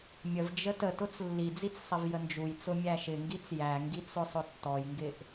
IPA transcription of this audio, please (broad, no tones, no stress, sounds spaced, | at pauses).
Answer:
mʲ ə v d͡ʒ ə t ə t ʊ t͡s lː i d͡z i t͡s sˤ ɪ v j ə n d͡ʒ u j t͡s ʊ mʲ æ ʃ ɪ ŋ ɡ i t͡s j æ ŋ ɡ i t͡s ʊ sˤ ʊ tː ɔ j ŋ ɡ ɪ ʔ